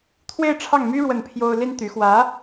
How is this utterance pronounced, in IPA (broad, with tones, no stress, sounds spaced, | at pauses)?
t̪ʰ w e˥˧ ɪ̯ ʈ͡ʂʰ ɑ˥˩ ŋ m y˥ ɻ w ə˥˩ n pʰ j o˥ ʊ̯ l i˥ n t̪ y˧˥ x w ä˧˥